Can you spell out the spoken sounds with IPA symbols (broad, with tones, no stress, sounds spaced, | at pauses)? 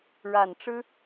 ɻ a˨˩ n ʈ͡ʂ ɻ̩˥